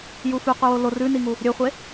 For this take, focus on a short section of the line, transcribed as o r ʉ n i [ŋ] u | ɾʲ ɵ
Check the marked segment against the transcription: correct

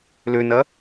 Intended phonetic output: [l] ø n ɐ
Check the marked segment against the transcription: correct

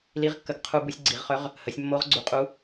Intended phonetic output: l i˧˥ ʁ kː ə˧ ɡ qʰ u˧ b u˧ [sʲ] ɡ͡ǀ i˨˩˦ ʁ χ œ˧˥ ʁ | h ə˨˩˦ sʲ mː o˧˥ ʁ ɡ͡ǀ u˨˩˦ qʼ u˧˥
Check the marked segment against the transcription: correct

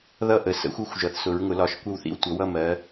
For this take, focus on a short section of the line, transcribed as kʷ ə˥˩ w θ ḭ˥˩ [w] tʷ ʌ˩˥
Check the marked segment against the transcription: correct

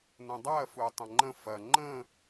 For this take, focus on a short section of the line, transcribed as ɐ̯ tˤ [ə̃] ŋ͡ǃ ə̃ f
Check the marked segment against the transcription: incorrect: ɐ̃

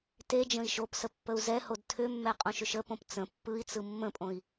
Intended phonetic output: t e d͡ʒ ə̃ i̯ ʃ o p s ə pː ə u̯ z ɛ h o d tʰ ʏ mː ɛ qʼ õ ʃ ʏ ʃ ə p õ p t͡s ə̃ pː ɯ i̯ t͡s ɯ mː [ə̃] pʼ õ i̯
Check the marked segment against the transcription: correct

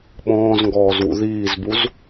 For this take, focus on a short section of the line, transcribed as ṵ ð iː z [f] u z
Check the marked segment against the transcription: incorrect: b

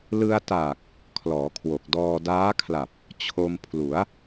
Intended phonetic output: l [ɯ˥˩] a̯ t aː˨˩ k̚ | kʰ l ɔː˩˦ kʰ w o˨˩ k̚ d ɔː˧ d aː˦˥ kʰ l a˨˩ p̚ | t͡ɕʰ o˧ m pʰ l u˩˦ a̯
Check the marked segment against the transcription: incorrect: ɯ˧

